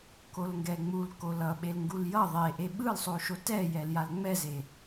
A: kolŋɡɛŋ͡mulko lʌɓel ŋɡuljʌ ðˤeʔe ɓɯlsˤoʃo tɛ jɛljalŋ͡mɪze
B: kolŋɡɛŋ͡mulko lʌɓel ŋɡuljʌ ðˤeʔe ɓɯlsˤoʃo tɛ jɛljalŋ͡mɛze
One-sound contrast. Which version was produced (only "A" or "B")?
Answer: B